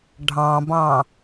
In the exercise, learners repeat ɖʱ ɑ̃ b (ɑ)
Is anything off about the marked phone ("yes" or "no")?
yes